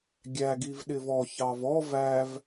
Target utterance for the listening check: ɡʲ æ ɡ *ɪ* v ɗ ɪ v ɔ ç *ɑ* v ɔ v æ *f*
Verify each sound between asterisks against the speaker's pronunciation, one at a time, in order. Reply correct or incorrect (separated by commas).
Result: incorrect, correct, incorrect